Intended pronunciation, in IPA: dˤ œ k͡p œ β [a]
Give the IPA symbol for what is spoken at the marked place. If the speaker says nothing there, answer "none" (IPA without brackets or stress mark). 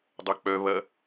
ɐ